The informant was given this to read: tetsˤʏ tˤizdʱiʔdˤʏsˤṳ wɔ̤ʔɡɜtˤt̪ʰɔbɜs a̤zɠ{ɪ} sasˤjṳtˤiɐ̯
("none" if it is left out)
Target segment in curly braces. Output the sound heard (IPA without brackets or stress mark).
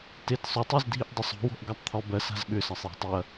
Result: ʏ